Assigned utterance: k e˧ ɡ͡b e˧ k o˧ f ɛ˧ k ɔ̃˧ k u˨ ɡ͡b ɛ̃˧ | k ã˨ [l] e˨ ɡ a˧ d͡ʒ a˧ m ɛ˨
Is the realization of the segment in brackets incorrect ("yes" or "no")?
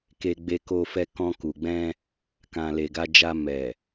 no